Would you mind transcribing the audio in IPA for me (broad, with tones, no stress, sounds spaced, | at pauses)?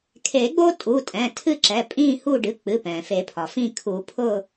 kʰ e˨˩˦ ɡ͡b o˦ tʼ u˩˧˩ tʼ ɛ̃˩˧˩ tʰ ɨ˦˨ ǁ ɛ˩˧˩ pʼ ĩː˦˨ h u˦˨ ɖ ɨ˩˧˩ k͡p ɨ˩˧˩ p ɛ̃ː˩ f e˨˩˦ pʰ ɒ˩ f ĩ˦˨ kʰ u˨˩˦ pʰ ʊ˦˨